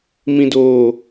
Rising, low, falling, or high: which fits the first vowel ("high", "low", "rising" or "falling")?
low